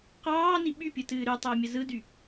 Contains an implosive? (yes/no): yes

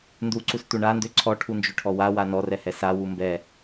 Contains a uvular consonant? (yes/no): no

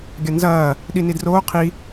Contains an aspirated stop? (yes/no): yes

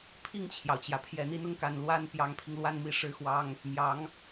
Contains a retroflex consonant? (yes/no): yes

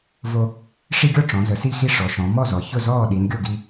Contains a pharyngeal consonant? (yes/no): no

